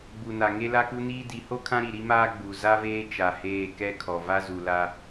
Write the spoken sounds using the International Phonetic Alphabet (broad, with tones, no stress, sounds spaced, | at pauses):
ɡ͡b u˨ n a˨ ŋ e˦ l a˦ k u˦ n iː˦ d i˨˦ h o˦ kʰ ã˦ ɾ i˨ ɾ i˦ m aː˦ ɡ͡b u˨ z a˦ v eː˦ t͡ʃ a˨ h eː˦˨ k ɛ˦ kʰ ɔ˨ v a˦ z u˨ l a˦